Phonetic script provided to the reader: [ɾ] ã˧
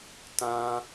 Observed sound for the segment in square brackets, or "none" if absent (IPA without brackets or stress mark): t